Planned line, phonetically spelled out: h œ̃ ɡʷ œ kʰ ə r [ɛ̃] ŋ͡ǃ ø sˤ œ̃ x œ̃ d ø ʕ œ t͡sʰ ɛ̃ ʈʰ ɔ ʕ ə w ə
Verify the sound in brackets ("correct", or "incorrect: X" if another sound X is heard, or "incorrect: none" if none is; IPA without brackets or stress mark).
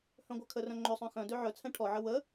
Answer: incorrect: œ̃